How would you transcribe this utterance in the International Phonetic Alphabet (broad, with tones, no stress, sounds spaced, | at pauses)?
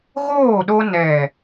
ɣ oː˦˨ ɗ o˧ n ɛ˨